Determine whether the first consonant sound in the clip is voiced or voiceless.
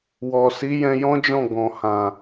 voiced